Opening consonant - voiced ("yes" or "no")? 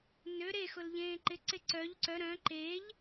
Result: yes